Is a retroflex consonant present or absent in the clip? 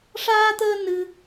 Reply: present